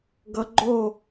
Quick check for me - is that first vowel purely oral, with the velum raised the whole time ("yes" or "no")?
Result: yes